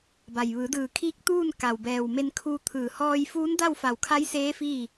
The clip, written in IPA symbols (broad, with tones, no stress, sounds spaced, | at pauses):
b a˩ j ʋ ɯː˩˧ d ɯː˧˩ kʰ iː˧˥ k̚ t̪ uː˥˨ n k a˩ w b ɛː˩ w m e˧ n kʰ uː˧ t̪ʰ ɯː˧˩ h ɔː˧ j f uː˧˥ n d a˥˨ w f a˧˩ w kʰ a˧˥ j s eː˧˥ f iː˥˨